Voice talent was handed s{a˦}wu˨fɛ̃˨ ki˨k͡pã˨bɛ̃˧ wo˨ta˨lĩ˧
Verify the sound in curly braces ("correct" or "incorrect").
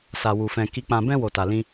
incorrect